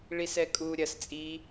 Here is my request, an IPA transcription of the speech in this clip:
ɭisɛkʼu ɾʲɐs t͡sʼi

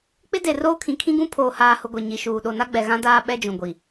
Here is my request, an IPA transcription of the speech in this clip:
k͡pɪ˦ de˨roː˦kʰĩ˨kʰĩ˦ ɡũ˦pʰoː˨haː˨hʊ˨ ɡʷe˨ɲi˨ʃuː˨ ɗo˨na˦ɡ͡bɛ˨ɣã˦ daː˦ɓɛ˦d͡ʒũ˨ ɡʷi˨

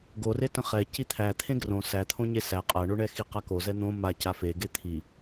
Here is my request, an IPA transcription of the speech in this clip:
ɡore tə̃χɛ cit̪ʰæ t̪ʰẽɡrõ sæt̪ʰõ ɲesæ qʼaɳoɳɛ xiqako zɛn̪õ ma cafeɡe t̪ʰi

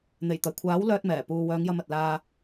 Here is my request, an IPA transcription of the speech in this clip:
n̪e˨˩jt̪ɐ˨˩jkʷʰaː˨˥w lœː˧t̚mɛː˨˩puː˨ wœː˨˧ŋjɐ˧mɐ˨t̚laː˧

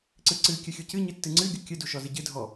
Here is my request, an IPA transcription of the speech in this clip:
ǀɨǀɨ kʲɨxʲucɨ ɲɨtːɨŋ͡ǀɨ ɡʲukʲɨ duʃɔzɨɟɨ dʱɔ

